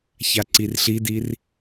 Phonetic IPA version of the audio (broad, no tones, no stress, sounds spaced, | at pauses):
ç a ǀ i r ɬ i d i r